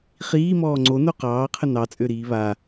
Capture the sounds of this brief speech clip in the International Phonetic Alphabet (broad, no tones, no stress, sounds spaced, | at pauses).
χ iː m ɔː ŋ͡ǀ o n o q ɑː qʰ ə n ɑ t͡sʼ ø ɾ iː β a